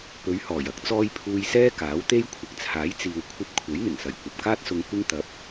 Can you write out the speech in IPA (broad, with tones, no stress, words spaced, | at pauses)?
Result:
pɵ˨˧ɥhɔː˨˩j ɐ˧k̚t͡sɔː˧j pʰuː˧jsɛː˥ kaː˨˥wt̪e˥jkʷʰɪ˨k̚ t͡sʰaː˨˥jt͡siː˨wkʷʰɐ˧p̚ kʷʰe˨˥jn̪ɪ˨˩ŋsɐ˨˩j kʷɐ˨p̚kaː˥t̚sʊ˧ŋ kʷɪ˧ŋt̪ɐ˨˥p̚